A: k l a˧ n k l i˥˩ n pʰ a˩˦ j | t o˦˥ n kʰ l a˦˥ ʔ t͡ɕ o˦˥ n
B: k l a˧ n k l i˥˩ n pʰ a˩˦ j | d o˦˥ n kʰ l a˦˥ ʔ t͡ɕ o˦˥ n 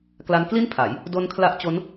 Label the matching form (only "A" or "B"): B